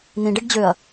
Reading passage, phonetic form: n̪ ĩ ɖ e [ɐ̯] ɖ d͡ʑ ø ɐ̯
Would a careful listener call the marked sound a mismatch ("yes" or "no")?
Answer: yes